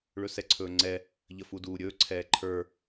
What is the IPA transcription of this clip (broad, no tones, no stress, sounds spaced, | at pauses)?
ɭ ɵ s ɛ ǀʰ ɵː ŋ͡ǀ ɛ | ʎ ə f u d uː ɾʲ ɵː ǀʰ ɛː ǃʰ ə˞